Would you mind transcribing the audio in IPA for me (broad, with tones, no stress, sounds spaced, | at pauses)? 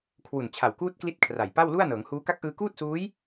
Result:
kʰ w u˨˩ n t͡ɕʰ a˨˩ w k uː˦˥ t̚ k l i˥˩ t̚ kʰ r a˨˩ j p a˥˩ w l u˥˩ a̯ n ɤː˩˦ ŋ h uː˦˥ k a˦˥ k̚ ʔ ɯː˧ k uː˥˩ t̚ s uː˦˥ j